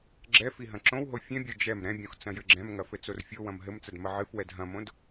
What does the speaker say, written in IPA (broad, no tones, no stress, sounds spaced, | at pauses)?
ɡ͡ǁ ɛ f i ɦ ɐ̃ ǁ õ w ɦ o fʲ ɛ̃ bʲ o d͡ʒ ɛ m ɾ ɛ̃ bʲ õ x t͡s ɐ̃ j ɘ ɡ͡ǁ ɛ̃ m ŋ ɐ f ɘ t͡s o r fʲ o w ɐ̃ m ɦ ɘ m t͡s ɐ d m ɐ ʕ ɨ f w ɛ d ɦ ɐ̃ m õ d